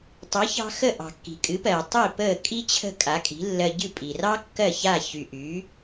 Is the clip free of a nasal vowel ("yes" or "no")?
yes